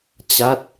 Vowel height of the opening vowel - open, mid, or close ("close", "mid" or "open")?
open